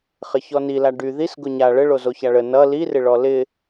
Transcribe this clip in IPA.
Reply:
χ ɪ ç ɔ n i l a ɖ y ð i s ɡ ʊ ɲ a ɭ ə ɭ o z o ç a ɭ ə n ʌ l i r ɪ ɭ ɔ l ɪ

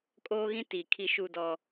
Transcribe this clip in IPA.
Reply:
kʼ oː˦ ɣ ĩ˦ t i˨ kʰ i˦ ʃ u˦ d ɔ˦

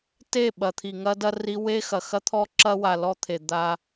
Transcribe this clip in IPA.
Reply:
t e˦˨ ɓ ɐ˨ t̪ʰ i˨ ŋ ɐ˦ d ɐ˦ r i˦ w e˦ x ɐ˨ x ɐ˦ t̪ʰ ɔ˦ ǁ ɐ˦ w a˨ l ɔ˦ t̪ʰ e˨ d̪ a˦

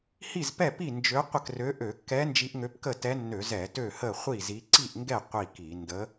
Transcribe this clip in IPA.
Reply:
h i˥˨ z p ɛ˥˨ p i˥˨ n d͡ʒ ø˧˥ qʷ ə˥˨ k r ø˧˥ ʔ ø˧˩˧ kː ɛ˧˥ n d͡ʒ i˧˥ ʔ ŋ ø˧˥ p k ə˥˨ t ɛ˧˥ nː ø˧˩˧ z ɛ˧˩˧ t ø˥˨ h ə˥˨ χʷ i˥˨ z i˧˥ ǀ i˥˨ ʔ ŋ ɡ ɛ˥˨ qʷ i˥˨ k i˧˩˧ n d ə˧˥

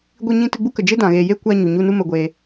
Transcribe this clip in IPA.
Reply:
ɡʷ i˧ ɲ ĩ˧ t ɨ˧ ɡ͡b u˦ k ə˨ d͡ʒ e˦ d ã˨ ɣ eː˨ j e˦ kʷ aː˧ ɲ u˨ ɲ u˧ n u˦ m ə˧ ɡʷ eː˧

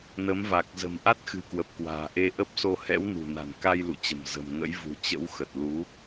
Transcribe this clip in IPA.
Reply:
n ə˨˦ m v a˨˩ k̚ z ə̤˨˩ m ʔ a˦˥ t̚ x ɨ̤˨˩ k w ə˨˩ p̚ k w a̤ː˨˩ ʔ e˧ ʔ ə˦˥ p̚ s o˧ h ɛ̰˧˥ w n ṳ˨˩ n a̤˨˩ n k a˧ j l ṵ˧˨ t͡ɕ ə̤˨˩ m z ə̤˨˩ m ŋ ə̰˧˥ j v ṳ˨˩ t͡ɕ ə̰˧˥ w x ə˨˩ t̚ l u˨˦

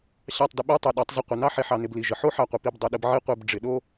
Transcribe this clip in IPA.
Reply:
ɕ ɑ˦˨ tˤ d ə˧ ɓ ə˞˦ tˤ e˨ ɗ ɔ˨˦ tˤ z ə˧ qʷ ɪ˨ n ɑ˦ ħ e˧ ħ ɑ˨ n ɪ˨ b l i˨ ʒ ə˨ ħ o˦ ħ ɑ˦˨ qʷ ə˨ p i˧ b dˤ i˨ ɗ ə˧ b ʕ i˦ qʷ e˧ b ɖ͡ʐ ɪ˨ ɗ o˦

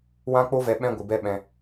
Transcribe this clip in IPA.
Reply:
w ã˦ k͡p o˦ v ɛ˧ ɓ ɛ̃˦ ɡʷ ɨ˨ b ɛ˧ ɓ ɛ̃˧

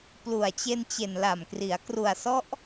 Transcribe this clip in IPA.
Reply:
p l u˨˩ a̯ t͡ɕ e˧ n t͡ɕ e˨˩ n l a˨˩ m k r i˩˦ a̯ k r u˨˩ a̯ s ɔ˦˥ ʔ

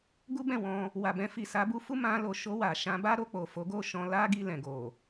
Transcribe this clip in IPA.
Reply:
ɡ u˦ b ɛ̃˦˨ w ɔ̃˧ | w a˨ b ɛ̃˧ f i˨ s a˨˦ b u˦ f u˦ m ã˧ l o˨ ʃ o˧ w a˨ ʃ ã˨˦ b a˦ ɾ o˧ k͡p o˨ f o˨˦ ɡ o˦˨ ʃ ɔ̃˧ l a˦ ɡ i˧ l ɛ̃˨ ɡ o˨

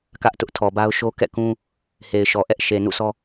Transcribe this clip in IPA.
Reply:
k ä˦ ʔ t ʊ˦ ʔ tʰ ɔ˨ b a˦ ʊ̯ ʃ o˦ k ɛ̰˦˨ k ũ˦ | h e˨ ɪ̯ ʃ ɔ˨ ʔ ɛ˦ ʔ ʃ e˨ n ṵ˦˨ s ɔ˦

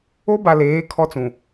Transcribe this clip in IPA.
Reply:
o˦ b a˨ l eː˨˦ kʰ ɔ˦ t͡s ũ˨

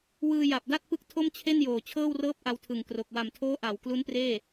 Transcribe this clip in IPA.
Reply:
w ɯː˧ j a˨˩ p̚ d a˥˩ t̚ p ɯ˦˥ k̚ tʰ o˥˩ m t͡ɕʰ e˥˩ n j oː˨˩ t͡ɕʰ ɤː˥˩ w r ɤː˥˩ p̚ ʔ a˧ w tʰ ɯ˨˩ ŋ k r o˨˩ k̚ w a˨˩ m tʰ oː˦˥ ʔ a˩˦ w k l u˦˥ n p r eː˥˩

